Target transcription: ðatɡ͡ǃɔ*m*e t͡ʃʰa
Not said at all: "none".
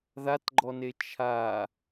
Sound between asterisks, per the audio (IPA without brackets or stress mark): n